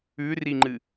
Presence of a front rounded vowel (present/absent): absent